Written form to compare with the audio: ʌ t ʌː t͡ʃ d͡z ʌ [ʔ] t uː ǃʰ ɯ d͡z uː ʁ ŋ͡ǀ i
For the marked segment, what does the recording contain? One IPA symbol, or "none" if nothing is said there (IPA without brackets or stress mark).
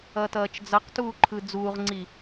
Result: q